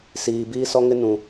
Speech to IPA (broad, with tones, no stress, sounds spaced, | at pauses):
s iː˨ b iː˦ s ɔ˦ ŋ ɪ˦ n ũ˨